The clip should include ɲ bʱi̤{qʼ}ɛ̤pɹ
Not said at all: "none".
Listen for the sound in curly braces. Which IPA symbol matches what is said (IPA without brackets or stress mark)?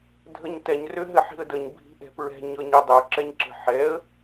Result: ʔ